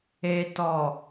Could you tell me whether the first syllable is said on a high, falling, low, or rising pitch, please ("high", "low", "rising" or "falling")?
low